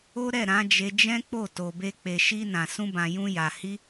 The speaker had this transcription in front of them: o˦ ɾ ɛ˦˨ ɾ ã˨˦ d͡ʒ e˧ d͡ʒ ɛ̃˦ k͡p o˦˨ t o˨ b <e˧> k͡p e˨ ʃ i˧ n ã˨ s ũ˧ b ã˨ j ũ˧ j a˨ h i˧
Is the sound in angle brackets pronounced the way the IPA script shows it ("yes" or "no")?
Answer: yes